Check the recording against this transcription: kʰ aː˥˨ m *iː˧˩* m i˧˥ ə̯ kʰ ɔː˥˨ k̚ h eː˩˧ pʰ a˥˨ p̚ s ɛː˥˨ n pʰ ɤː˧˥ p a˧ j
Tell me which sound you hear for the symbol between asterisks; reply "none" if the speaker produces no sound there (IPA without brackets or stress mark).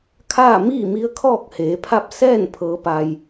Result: iː˥˨